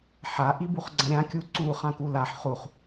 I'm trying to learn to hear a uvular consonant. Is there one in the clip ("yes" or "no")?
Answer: yes